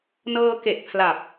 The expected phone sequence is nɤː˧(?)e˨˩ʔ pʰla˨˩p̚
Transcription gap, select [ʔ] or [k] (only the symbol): k